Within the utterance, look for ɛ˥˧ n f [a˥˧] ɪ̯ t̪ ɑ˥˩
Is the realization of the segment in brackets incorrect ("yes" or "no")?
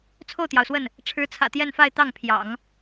no